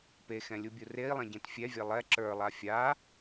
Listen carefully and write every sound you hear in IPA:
p e x ɛ̃ lʲ u bʲ u r e i̯ lˠ ɛ̃ ɟ ẽ t fʲ ɛ vʲ ɛ lˠ ɛ ǁ ə˞ lˠ a fʲ a

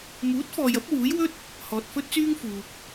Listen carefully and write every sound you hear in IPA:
m uː˨˥ t̚ f ɔː˨ j ɐ˨˥ p̚ w uː˨˥ j w ɵ˥ t̚ | h ɔː˨ t̚ f ɵ˥ t̚ t͡s yː˥ ŋ f uː˨ k̚

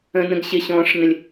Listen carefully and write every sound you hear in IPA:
ə̃ n ə̃ ɡ ɕ ɪ ɕ ɔ̃ː ʂ n ə̃ lʲ

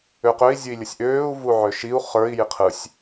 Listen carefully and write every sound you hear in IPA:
ø q ø i̯ zʲ ɯ i̯ lʲ ə sʲ ʔ øː u̯ v u ʕ ø ʃ i u̯ χ ə˞ i̯ j i qʰ ɯ sʲ

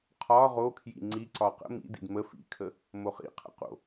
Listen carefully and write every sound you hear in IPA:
qʰ ɒ ʁ o kʰ j ḭ ŋ͡ǀ i ǀ ɒ q ə̰ m ḭ d ḭ d m ə f ḭ kʰ ə | m o χ ḭ qʰ ə̰ q o̰

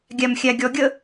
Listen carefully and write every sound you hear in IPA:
ɡʲ æ m xʲ æ ɡʲ ɔ ɡʲ ə

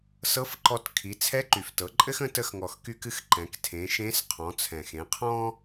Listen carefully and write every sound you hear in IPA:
s ɤ˧˥ f ǃ ɔ˧ t kʰ i˩˧ t͡sʰ ɛ˧˥ ǃ y˩ f t ɤ˩˧ ǃʼ ɘ˥ x ə̃˧˥ t ə˧ x ŋ ɔ˩ x k y˧ k ɨ˧ x ǃ ɛ̃˩˧ k tʰ ẽ˩˧ ʃ ẽ˧˥ s qʰ ɔ̃˩˧ t͡sʰ ɛ̃˩ x ẽ˩˧ qʰ ɔ̃˥

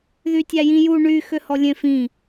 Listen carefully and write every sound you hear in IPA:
ð y tʲ æ j ĩ j u ɳ y x ø h ɔ lʲ ẽ f ĩ

